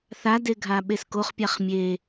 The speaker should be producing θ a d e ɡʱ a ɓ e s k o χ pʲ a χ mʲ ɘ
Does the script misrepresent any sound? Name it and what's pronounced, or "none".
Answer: ɘ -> e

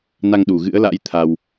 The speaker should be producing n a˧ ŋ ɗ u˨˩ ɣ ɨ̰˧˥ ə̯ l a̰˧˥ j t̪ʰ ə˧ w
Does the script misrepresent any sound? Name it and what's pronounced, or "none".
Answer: ə˧ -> a˧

